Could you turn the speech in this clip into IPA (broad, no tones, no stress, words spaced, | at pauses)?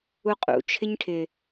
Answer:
uqʼṵ t͡ʃʰɪɲʈʰɪ